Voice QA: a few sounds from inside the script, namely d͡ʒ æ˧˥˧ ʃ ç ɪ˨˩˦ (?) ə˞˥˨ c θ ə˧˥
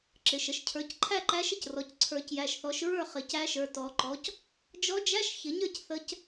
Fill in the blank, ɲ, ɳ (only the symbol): ɲ